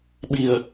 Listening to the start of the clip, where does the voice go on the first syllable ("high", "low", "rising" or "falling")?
low